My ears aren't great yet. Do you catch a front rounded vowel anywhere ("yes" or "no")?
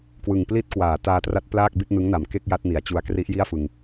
no